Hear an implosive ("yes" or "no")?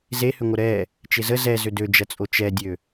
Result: no